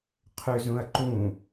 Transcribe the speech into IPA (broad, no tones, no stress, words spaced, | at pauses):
qʰøzũɐ̯ǃũ